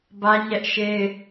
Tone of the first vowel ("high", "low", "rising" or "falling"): high